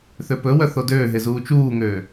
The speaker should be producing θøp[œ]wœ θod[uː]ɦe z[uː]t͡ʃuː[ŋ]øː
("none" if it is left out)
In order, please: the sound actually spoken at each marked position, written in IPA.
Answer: ɵ, øː, uː, ŋ

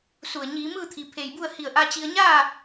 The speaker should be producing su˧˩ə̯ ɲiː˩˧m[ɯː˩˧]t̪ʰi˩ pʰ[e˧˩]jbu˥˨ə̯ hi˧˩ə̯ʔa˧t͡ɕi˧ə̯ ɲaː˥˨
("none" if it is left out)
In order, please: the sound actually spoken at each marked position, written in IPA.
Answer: ɯː˥˨, e˧˩

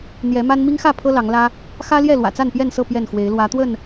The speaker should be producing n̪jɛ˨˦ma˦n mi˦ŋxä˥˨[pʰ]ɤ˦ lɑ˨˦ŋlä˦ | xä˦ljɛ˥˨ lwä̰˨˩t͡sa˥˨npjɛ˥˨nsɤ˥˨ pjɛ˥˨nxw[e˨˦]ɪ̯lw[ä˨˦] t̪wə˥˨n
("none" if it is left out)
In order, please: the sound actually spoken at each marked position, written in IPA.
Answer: pʰ, e˨˦, ä˨˦

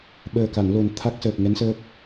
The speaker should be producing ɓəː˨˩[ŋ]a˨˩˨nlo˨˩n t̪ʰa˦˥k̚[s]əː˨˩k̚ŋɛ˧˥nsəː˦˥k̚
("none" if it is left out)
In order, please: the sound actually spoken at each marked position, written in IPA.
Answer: k, s

